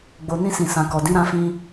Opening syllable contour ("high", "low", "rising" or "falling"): low